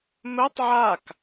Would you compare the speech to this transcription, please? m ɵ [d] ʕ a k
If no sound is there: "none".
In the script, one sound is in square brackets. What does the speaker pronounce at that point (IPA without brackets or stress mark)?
tˤ